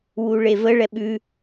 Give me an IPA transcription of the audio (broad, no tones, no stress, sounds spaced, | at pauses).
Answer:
w u ɭ e v ə ɭ ɛ ɓ ʉ